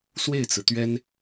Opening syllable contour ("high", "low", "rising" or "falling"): falling